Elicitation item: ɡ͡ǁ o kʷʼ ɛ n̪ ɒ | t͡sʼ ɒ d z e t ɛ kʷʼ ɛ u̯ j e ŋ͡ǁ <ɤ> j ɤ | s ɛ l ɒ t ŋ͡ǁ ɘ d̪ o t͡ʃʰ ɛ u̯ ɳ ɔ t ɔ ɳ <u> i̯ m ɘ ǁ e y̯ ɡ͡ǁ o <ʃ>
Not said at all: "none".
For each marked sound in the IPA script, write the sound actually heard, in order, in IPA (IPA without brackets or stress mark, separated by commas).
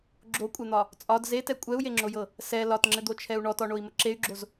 o, o, z